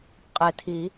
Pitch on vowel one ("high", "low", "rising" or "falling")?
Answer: low